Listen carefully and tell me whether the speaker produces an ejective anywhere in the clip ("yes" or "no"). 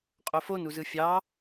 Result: yes